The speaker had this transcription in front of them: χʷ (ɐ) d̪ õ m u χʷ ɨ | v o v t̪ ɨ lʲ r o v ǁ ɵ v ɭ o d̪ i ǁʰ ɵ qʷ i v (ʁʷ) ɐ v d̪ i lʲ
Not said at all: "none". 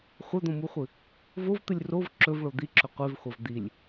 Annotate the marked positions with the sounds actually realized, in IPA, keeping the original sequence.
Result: ɐ, χʷ

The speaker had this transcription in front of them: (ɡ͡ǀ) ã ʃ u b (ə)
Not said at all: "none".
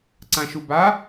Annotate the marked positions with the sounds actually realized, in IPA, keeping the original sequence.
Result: ǀ, a

